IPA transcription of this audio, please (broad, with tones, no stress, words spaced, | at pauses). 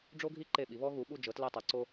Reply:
ɖ͡ʐo˦ɡʱi˦ ǃe˦˨ɓi˩˥ βɔ˦ɣu˩˥ɓu˦˨ d͡ʒɤ˩˥tlɛ˦˨tˤa˩˥ǀo˦